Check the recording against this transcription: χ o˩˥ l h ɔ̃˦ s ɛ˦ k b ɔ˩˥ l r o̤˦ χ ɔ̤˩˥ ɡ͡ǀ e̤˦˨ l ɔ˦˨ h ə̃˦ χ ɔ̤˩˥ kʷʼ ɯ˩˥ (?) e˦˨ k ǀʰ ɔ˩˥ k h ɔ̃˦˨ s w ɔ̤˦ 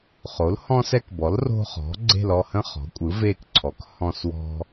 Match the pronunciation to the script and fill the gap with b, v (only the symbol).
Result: v